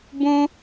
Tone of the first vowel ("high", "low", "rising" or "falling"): high